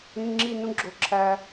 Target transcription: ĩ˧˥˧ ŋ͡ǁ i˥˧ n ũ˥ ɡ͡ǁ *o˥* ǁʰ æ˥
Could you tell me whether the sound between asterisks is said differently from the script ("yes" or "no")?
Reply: no